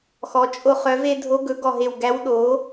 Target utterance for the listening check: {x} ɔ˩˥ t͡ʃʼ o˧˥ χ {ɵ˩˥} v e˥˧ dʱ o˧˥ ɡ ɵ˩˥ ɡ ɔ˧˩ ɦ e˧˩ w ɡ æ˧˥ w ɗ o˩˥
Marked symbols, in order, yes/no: yes, no

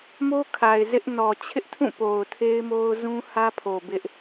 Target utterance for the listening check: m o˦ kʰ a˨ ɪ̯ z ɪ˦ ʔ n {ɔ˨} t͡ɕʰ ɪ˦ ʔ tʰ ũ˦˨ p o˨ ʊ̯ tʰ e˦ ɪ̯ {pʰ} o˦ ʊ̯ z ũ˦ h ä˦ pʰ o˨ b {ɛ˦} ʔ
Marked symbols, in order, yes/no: yes, no, no

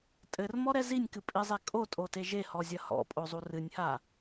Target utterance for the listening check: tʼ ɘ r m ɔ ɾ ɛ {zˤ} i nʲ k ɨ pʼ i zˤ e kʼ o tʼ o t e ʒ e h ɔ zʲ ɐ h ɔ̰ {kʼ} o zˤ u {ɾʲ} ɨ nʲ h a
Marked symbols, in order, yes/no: no, no, no

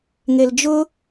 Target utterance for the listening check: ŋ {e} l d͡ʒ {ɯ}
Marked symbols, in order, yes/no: yes, no

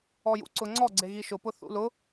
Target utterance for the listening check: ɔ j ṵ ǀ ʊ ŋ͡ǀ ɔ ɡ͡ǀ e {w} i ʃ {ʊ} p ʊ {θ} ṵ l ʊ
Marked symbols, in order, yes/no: no, yes, yes

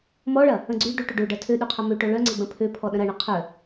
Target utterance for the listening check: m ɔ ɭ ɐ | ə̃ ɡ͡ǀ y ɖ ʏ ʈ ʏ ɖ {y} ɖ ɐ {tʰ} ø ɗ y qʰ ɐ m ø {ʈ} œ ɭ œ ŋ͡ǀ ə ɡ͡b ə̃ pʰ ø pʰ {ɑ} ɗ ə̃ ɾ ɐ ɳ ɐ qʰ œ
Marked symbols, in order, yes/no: no, yes, yes, no

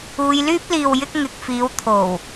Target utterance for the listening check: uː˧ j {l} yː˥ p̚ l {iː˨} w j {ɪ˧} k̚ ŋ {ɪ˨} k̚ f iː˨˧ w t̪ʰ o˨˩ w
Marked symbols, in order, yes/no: yes, yes, yes, yes

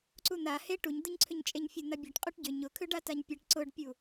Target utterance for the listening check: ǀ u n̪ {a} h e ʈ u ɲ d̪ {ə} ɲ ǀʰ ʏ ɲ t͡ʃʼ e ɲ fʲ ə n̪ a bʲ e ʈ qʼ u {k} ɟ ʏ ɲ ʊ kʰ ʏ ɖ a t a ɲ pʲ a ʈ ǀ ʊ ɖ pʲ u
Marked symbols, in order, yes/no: yes, yes, no

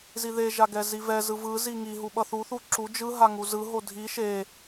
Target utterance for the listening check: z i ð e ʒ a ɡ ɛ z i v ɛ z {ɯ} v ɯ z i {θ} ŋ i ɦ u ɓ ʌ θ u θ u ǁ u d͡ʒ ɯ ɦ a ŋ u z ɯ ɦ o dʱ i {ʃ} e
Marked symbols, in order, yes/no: yes, no, yes

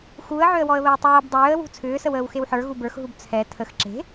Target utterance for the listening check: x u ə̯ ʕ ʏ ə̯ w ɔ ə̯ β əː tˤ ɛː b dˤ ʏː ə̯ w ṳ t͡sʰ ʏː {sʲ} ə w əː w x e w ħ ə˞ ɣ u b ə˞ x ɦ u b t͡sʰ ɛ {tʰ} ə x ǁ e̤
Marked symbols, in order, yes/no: no, yes

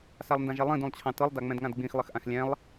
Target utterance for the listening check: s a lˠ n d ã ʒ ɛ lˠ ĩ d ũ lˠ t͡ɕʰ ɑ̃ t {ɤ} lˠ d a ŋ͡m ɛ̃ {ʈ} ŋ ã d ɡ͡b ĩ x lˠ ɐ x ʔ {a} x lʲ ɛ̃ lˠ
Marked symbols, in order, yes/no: yes, no, no

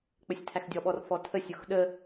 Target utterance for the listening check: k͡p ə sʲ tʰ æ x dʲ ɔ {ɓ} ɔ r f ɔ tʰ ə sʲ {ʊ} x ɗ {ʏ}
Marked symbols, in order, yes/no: yes, yes, no

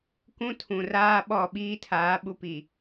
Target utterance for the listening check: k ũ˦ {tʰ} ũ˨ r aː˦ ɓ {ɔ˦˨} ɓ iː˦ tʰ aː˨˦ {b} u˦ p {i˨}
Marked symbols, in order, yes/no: yes, yes, no, yes

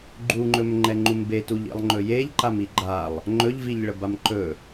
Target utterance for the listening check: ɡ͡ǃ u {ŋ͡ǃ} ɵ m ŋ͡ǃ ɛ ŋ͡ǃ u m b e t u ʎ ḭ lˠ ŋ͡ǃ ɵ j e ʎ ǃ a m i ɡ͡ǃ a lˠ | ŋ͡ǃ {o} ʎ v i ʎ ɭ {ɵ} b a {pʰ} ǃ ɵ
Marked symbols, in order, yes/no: yes, no, no, no

